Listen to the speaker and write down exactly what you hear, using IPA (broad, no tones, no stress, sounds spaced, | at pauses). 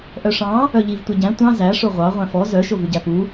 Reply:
ʔ œ ʂ ɑ̃ | œ ʎ i v tʷ ɛ ɟ æ̃ tʷ ɑ̃ z æ ʂ o ʁʷ ɑ ʁʷ æ̃ f ɔ z œ ʃ o v ʉ ɟ æ p u